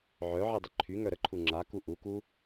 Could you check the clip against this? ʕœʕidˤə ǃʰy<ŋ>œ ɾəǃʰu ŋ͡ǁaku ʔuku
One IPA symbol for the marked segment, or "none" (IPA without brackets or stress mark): ŋ